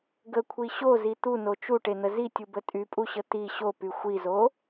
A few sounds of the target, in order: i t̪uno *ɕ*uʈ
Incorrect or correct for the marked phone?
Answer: incorrect: t͡ʃ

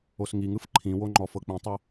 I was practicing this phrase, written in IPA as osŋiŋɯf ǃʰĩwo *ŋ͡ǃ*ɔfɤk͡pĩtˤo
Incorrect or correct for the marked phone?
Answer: correct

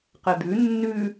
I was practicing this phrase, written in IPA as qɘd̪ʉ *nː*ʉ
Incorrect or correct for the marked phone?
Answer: correct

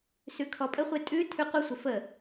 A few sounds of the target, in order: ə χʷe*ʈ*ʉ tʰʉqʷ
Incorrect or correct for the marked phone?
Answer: incorrect: tʼ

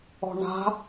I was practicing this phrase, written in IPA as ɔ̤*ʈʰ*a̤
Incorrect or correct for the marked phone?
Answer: incorrect: ɳ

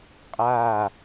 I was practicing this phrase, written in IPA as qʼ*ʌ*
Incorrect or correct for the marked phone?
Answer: incorrect: a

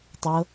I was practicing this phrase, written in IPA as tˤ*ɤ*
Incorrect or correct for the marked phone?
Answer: correct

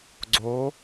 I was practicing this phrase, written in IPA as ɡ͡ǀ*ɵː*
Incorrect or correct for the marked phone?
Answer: incorrect: oː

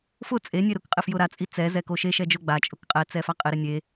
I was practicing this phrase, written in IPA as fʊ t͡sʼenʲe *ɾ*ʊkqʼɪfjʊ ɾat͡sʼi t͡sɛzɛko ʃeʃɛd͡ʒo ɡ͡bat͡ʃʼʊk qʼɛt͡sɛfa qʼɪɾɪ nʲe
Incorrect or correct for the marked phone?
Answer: correct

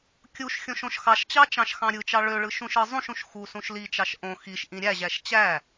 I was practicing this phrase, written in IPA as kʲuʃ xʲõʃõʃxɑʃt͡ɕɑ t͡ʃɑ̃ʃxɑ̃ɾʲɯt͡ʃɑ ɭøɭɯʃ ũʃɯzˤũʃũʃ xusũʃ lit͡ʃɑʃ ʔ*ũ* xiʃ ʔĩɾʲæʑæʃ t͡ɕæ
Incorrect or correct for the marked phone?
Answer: incorrect: õ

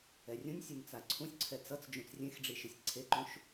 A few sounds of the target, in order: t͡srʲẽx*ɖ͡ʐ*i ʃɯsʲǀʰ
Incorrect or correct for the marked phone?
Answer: correct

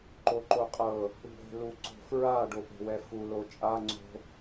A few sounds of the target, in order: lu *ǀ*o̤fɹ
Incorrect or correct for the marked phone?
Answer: correct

